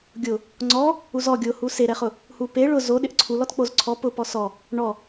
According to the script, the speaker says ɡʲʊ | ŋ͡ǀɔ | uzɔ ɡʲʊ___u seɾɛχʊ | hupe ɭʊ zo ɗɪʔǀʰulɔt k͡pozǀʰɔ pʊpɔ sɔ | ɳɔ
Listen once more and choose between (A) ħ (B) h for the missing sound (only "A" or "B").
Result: B